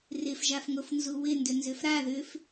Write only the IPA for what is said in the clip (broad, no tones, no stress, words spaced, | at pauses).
rɪfʒafŋofnzu wɪndʏnzʏf ɾa ðʏf